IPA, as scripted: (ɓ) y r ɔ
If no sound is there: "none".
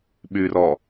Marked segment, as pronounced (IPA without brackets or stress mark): ɓ